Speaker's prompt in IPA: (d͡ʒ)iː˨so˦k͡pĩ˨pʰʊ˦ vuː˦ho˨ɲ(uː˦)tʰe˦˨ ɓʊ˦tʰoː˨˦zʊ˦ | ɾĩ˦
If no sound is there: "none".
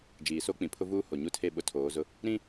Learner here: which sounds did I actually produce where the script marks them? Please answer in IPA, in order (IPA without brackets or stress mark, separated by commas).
d͡ʒ, u˦